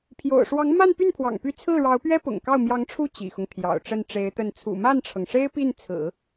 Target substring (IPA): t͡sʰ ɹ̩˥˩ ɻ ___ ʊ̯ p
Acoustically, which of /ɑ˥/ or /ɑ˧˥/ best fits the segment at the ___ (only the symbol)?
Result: ɑ˧˥